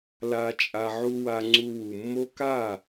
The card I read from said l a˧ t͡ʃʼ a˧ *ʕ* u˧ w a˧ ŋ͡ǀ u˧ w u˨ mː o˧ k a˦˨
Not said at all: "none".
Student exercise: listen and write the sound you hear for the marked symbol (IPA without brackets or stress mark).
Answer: ʕ